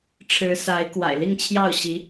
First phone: ʈ͡ʂʰ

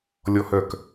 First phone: lʲ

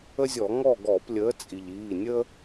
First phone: ə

